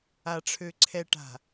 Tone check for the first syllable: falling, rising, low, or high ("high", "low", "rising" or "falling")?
low